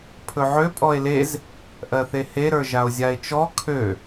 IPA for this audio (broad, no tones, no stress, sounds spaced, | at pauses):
pʰ ɵ ʕ ø pʼ ɔ e̯ l e z | ʔ ɜ θ e h e ɾ ə˞ ʒ a o̯ zʲ a e̯ t͡ʃ ɔ kʰ ø